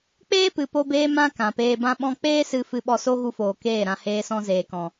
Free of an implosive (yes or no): no